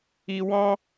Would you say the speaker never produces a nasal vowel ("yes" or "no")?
no